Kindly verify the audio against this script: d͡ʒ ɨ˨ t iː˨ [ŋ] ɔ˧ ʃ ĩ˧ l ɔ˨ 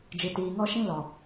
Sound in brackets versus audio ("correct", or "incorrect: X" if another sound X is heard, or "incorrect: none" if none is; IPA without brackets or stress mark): correct